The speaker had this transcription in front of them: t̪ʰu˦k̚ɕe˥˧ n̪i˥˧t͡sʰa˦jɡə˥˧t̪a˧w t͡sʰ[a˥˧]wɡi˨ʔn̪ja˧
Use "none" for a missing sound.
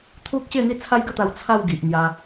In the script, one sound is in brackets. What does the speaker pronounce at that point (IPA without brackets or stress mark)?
a˥˧